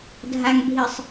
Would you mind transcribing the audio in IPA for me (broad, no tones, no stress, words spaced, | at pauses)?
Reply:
dʱaŋbʱisˤ